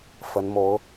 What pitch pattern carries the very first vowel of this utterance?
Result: rising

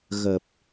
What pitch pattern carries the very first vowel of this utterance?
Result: low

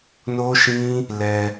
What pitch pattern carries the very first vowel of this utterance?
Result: high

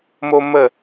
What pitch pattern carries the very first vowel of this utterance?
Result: high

